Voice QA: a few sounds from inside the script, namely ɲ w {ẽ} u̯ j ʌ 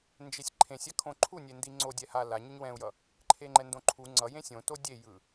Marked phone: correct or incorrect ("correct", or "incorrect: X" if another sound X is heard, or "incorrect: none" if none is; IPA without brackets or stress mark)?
incorrect: ɛ̃